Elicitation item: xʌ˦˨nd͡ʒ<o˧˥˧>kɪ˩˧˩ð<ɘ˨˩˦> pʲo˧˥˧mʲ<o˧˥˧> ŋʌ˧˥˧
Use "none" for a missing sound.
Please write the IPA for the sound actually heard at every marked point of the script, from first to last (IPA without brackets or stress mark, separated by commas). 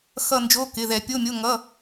o˧˥˧, ɛ˨˩˦, o˧˥˧